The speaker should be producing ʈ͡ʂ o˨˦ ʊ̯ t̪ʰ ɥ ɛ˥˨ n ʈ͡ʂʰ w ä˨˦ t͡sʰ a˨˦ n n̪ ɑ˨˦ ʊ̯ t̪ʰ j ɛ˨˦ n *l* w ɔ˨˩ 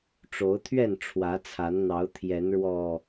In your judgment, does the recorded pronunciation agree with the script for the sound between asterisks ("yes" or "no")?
no